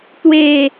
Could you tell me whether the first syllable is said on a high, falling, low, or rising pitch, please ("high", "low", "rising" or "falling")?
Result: falling